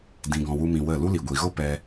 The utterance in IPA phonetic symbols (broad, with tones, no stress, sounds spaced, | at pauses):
d ĩ˧ ɡ ɔ̃˧ w u˦ m ĩ˧ w ə˦˨ l u˦ l i˨ ɡʷ i˨ ɣ o˦ p ɛ˧